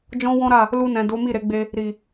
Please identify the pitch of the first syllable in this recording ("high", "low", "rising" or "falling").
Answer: high